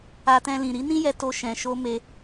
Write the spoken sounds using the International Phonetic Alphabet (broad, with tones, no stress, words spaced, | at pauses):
a˧tɛ̃˧lĩ˨ ɾi˨˦nĩ˦jɛ˧ to˧ʃɛ̃˨ʃo˧ me˧